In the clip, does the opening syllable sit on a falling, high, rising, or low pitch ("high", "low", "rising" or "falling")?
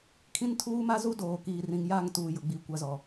high